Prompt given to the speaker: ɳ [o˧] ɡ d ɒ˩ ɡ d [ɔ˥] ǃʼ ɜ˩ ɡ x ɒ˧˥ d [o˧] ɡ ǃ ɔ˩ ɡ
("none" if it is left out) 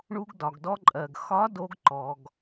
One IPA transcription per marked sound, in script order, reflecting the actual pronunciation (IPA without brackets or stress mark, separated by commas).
u˧, ɔ˧, o˧